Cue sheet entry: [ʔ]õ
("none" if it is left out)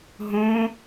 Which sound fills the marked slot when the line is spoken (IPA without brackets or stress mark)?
ɦ